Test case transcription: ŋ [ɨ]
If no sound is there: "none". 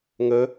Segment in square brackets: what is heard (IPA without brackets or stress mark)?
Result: ə